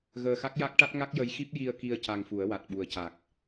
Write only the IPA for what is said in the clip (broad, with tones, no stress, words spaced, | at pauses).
ɣəː˧xa˦˥k̚ja˦˥k̚ʈa˦˥t̚ ŋa˦˥k̚jə˧˥jxi˦˥p̚ ji˧ə̯ ki˧ə̯ ca˧ŋfu˨˩˦ə̯wa˨˩t̚ ɓu˨˩ə̯ca˨˩k̚